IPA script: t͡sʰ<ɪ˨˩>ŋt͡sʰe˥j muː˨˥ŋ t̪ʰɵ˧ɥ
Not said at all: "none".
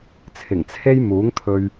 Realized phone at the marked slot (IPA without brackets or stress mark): ɪ˨˩